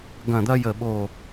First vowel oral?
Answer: no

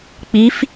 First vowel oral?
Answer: yes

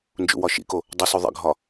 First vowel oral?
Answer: yes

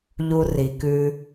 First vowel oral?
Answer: yes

